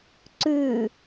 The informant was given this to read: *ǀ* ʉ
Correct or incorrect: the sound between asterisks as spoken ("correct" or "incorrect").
correct